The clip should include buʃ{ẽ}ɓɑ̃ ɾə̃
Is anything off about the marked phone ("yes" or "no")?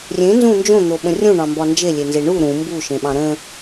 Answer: no